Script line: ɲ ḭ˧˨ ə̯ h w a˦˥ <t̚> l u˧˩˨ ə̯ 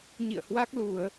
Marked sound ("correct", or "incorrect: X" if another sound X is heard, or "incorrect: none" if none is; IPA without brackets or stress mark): incorrect: k̚